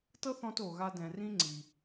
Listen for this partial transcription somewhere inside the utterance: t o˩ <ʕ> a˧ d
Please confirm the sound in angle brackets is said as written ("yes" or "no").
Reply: no